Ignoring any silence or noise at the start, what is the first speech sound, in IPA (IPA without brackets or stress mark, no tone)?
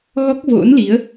ɣ